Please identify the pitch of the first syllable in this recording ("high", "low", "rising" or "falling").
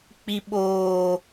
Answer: low